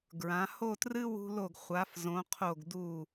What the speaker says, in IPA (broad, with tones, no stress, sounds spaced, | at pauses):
ɡ ɹ ã˩˧ h o˥˧ t r ɨ˥ w ṳ˧ l o˧˩ ɡ χʷ a˩˧ f z õ˩˧ qʰ o˧˩ ɡ d u˧˩